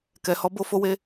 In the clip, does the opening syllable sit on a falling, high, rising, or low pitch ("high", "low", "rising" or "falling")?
low